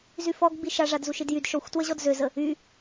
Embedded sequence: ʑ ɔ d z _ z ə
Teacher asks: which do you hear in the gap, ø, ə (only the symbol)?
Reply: ø